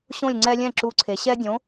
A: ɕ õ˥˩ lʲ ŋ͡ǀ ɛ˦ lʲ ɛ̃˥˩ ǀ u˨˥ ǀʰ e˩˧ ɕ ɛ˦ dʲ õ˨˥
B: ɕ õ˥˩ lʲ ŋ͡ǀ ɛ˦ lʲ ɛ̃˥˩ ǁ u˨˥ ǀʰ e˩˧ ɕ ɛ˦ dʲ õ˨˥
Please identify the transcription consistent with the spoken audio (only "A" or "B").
B